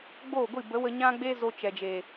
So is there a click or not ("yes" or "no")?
no